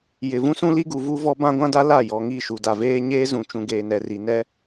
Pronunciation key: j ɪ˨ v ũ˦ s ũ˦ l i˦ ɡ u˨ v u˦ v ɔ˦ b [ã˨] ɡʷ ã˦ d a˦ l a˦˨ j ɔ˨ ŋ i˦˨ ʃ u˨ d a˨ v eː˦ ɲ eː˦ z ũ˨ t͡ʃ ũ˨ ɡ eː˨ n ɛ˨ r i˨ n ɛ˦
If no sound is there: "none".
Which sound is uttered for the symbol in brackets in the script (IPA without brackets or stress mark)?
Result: ã˦